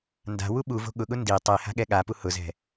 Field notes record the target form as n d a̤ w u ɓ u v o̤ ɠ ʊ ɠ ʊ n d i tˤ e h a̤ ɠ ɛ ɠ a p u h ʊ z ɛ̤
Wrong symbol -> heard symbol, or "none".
none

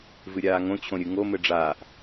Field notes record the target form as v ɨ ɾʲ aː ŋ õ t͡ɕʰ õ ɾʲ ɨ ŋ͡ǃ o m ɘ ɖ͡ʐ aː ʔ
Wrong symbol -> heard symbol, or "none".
ŋ͡ǃ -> ŋ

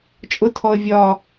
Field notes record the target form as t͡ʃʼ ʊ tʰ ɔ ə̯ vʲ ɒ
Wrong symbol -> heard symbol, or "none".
none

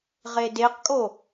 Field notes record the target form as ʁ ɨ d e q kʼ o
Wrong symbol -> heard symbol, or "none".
ɨ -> e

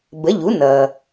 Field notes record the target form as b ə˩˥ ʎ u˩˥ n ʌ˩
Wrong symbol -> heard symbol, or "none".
none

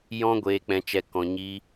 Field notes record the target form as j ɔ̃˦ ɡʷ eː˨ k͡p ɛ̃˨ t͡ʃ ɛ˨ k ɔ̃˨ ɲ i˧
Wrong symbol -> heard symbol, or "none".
none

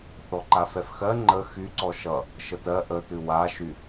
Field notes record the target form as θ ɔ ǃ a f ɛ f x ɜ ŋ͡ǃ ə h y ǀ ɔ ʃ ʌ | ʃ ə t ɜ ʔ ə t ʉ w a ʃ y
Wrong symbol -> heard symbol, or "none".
h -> x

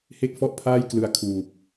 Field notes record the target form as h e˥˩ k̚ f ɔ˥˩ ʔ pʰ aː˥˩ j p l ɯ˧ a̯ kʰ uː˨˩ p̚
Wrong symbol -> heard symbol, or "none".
p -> k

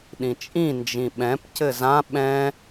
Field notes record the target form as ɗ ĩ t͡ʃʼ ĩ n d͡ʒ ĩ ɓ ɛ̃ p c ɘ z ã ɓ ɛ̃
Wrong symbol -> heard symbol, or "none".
none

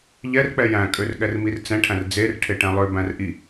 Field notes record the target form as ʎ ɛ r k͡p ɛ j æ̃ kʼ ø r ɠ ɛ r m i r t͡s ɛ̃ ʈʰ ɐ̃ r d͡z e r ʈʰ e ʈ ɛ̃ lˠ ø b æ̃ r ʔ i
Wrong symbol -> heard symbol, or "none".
ɐ̃ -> æ̃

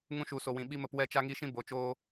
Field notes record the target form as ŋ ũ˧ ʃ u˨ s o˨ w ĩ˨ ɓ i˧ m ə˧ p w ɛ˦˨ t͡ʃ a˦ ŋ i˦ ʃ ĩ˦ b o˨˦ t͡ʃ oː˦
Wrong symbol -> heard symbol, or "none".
none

